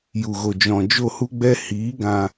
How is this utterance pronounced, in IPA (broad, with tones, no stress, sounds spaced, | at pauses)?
j u˨ ɣ o˨ d͡ʒ ɔ̃˨ d͡ʒ o˦˨ h u˦ ɡ͡b ɛ˦ h iː˨˦ ɡ ã˧